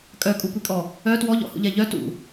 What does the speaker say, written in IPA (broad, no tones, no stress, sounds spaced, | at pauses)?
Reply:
kʼ œ kʼ u kʷ i kʼ ɔ | œ t w ɔ ʎ ɔ̰ h ṵ ʎ ɛ ʎ œ t ṵ